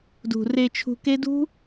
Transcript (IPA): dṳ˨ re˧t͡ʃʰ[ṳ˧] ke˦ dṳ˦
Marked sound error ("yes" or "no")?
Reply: no